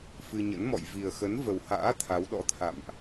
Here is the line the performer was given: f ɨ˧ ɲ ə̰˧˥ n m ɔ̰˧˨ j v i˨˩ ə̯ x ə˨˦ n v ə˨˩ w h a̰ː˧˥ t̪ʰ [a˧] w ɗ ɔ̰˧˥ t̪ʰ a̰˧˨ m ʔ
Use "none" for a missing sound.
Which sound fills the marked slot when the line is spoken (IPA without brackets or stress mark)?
a˨˦